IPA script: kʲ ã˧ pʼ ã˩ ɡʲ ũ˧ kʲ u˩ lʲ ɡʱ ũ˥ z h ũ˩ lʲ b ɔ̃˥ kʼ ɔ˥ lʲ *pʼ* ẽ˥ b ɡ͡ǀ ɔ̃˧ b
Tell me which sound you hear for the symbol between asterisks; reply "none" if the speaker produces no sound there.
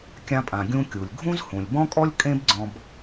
kʼ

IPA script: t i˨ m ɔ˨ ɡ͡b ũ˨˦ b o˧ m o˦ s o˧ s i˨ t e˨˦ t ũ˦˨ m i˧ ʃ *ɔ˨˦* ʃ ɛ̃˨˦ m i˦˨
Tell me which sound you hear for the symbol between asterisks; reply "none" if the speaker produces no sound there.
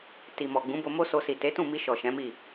ɔ˨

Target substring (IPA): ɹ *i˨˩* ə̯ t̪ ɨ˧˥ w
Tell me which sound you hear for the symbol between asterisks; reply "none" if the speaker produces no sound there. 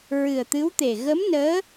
ɨ˨˩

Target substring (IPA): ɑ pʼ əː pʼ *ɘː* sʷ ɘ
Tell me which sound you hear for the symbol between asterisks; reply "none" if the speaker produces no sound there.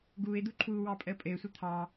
ɘː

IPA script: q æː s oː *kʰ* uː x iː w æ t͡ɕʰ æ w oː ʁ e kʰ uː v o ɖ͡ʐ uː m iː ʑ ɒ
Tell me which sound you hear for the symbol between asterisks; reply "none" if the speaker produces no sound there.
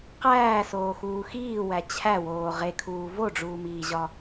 x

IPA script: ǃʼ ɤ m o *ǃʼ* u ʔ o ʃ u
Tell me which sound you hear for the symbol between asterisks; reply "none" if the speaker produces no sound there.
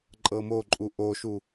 ǃʼ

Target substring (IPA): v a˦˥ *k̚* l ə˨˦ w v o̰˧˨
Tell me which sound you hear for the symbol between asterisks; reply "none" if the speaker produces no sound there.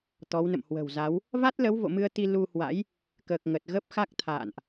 t̚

